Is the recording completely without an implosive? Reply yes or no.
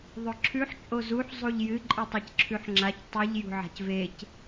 yes